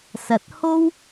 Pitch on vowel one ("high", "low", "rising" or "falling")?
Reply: rising